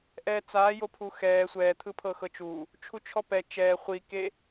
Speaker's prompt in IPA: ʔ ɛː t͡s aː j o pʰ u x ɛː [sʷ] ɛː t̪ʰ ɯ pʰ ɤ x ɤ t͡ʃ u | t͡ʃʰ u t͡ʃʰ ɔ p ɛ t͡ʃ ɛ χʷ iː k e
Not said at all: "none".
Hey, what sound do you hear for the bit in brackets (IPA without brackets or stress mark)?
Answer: sʷ